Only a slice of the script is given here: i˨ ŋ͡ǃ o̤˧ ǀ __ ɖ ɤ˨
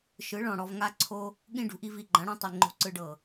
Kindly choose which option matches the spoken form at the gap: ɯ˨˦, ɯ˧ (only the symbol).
ɯ˧